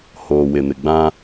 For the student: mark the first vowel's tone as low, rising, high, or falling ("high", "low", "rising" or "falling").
low